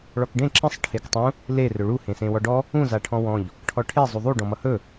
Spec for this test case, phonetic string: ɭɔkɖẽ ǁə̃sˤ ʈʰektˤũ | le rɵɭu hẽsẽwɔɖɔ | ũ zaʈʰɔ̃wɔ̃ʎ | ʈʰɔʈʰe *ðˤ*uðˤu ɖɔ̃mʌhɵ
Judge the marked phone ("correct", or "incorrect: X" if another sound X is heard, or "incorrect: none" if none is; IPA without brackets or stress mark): incorrect: zˤ